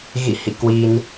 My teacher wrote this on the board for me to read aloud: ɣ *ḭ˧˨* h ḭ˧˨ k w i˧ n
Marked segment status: correct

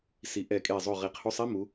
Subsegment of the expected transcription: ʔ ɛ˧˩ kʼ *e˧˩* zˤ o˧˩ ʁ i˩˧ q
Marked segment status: correct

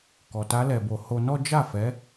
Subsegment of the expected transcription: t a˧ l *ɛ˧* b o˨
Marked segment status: incorrect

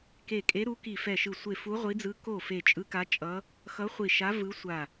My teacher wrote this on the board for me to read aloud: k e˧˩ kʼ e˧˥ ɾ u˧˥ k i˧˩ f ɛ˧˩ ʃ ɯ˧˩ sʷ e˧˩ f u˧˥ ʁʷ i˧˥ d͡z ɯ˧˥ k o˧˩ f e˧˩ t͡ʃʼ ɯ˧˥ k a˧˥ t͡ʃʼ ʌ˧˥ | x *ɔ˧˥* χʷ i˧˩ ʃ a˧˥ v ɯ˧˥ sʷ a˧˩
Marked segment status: incorrect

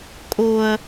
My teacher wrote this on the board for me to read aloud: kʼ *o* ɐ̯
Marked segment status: correct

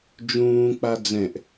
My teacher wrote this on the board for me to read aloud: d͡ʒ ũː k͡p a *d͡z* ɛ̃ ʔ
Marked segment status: correct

